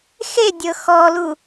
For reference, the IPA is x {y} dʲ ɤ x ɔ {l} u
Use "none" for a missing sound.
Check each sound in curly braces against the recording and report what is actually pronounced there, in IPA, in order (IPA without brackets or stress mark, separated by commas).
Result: e, l